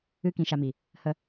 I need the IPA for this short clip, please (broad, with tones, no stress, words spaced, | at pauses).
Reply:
ɨ˦ kĩ˧ʃa˧mi˨ | hə˦